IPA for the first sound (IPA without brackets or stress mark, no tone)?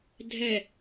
dʱ